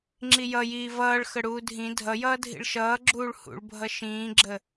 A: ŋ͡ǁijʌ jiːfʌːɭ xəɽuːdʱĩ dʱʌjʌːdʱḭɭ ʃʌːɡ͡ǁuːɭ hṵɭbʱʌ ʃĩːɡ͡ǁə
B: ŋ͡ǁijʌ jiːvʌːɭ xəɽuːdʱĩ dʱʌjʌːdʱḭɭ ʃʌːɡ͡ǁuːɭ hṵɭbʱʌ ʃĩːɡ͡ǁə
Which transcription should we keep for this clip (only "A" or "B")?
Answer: B